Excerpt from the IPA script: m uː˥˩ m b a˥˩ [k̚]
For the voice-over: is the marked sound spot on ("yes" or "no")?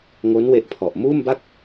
yes